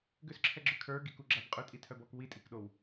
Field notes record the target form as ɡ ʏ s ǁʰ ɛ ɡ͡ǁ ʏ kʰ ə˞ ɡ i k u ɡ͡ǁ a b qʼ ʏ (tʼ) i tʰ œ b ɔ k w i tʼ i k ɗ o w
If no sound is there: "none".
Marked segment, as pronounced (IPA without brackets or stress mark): tʼ